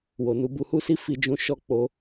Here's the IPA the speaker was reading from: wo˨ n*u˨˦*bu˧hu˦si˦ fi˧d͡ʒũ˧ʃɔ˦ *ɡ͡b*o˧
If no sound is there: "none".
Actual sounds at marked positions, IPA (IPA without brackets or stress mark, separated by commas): u˨˦, k͡p